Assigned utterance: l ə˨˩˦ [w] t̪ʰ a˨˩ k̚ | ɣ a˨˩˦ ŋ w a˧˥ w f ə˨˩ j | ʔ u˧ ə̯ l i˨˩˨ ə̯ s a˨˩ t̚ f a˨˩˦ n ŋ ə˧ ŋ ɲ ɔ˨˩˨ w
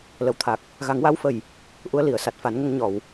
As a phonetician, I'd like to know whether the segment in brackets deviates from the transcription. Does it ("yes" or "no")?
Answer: no